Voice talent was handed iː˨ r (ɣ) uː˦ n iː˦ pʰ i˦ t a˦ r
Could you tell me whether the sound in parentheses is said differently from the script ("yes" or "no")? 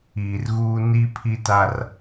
no